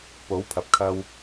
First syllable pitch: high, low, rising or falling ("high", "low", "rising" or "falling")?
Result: rising